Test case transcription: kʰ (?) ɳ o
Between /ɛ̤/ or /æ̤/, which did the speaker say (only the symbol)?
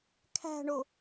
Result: æ̤